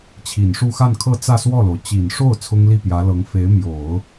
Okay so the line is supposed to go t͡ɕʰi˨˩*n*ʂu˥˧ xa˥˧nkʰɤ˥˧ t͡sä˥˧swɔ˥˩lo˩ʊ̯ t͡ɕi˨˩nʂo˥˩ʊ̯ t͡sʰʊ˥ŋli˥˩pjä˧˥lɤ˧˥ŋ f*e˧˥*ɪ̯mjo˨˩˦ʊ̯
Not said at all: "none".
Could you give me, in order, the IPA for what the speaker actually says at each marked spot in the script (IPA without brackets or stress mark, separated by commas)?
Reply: n, e˧˥